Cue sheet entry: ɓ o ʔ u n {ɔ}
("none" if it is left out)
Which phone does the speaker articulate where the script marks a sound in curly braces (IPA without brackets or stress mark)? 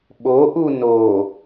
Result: o